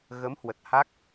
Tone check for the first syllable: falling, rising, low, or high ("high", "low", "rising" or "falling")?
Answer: rising